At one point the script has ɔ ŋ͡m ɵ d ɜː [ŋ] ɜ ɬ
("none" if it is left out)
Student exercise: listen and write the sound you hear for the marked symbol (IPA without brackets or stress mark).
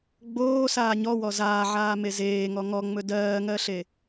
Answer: ŋ